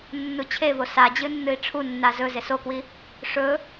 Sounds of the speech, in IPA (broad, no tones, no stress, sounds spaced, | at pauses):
nː u t͡ɕʰ e v o s a d͡ʑ ɨ nː ɨ i̯ ʈ͡ʂʰ u nː a z ɵ z e s o k w i | ʂ ɵ